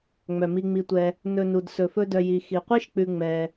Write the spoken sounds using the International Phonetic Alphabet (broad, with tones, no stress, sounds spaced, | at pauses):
ŋ͡m œ˩ m i˨ ŋ͡m i˨ tʷ ɛ˨ | n ɵ˨ n u˩ d s ɵ˩ f ɵ˦ d œ˨ j i˩ x i˩ qʷ i˥ ʃ k͡p ʉ˨ ŋ͡m ɛ˩